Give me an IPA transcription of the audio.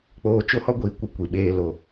k͡p oː˨ t͡ʃ o˦ h ɔ˦ ɡʷ iː˨ kʷ ɪ˦ kʷ i˨ ɓ eː˦ l o˦˨

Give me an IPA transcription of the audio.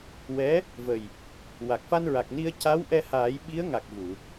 w ɛ˧˥ | v ə˨˩ j | w a˨˩ k̚ f a˧ n ɹ a˨˩ k̚ n i˧ ə̯ c a˧˥ w ʔ ɛ˧ h aː˨˩˦ j ɓ i˧˥ ə̯ ŋ a˨˩ k̚ v u˨˩˨

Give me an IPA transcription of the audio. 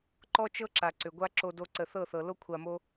ǃ ɔ˦ t͡ʃ ɤ˦ ǁ a˨ ǀ ʏ˨ ɡʷ a˦ ǁ o˧ d o˦ ǀ ə˧ θ ɤ˦˨ θ ɤ˨ l o˦ kʷʰ a˧ m o˦

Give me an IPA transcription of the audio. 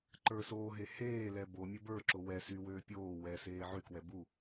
ǃ ə˞ s oː ɦ e h eː l ɛ b o mʲ ə˞ b ə˞ ǁ o w ɛ s y w øː pʲ oː w ɛ s eː ʕ y k w ɛ b u

